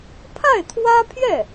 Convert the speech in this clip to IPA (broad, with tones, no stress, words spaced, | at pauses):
pʰa˥˩ɪ̯t̪ʰwä˥pʰjɛ˥˩